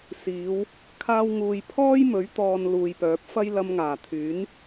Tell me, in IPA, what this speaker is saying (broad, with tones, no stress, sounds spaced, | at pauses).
s iː˨˧ w | kʰ aː˧ w ŋ uː˨ j pʰ ɔː˥ j m ɵ˨˥ ɥ t̪ ɔː˨ n l uː˨ j p œː˨˥ p̚ f ɐ˥ j l ɐ˧ m ŋ aː˨˩ t̪ʰ yː˨˥ n